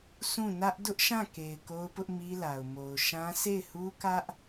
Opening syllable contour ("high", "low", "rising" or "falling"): falling